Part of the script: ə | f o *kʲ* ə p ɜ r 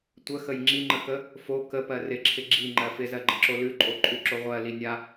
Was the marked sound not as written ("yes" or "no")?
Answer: yes